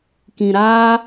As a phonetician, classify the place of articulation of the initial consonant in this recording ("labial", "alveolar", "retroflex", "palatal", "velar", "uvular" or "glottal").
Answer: velar